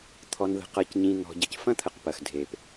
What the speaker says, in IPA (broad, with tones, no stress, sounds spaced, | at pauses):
t̪ʰ ɔ˨ n ð ə̤˨ q ʌ˨ c ɲ ĩ˨ n̪ ɔ̤˨ ɟ ə˨ c f ɐ̃˦ t̪ʰ ə˨ q p ɐ˨ x dʱ e˨ p